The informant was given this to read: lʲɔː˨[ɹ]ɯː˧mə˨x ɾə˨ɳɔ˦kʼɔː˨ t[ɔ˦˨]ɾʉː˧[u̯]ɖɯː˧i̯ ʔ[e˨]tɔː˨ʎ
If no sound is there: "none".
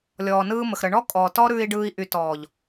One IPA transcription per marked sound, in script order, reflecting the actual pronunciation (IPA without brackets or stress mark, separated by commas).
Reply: n, ɔ˦, i̯, y˨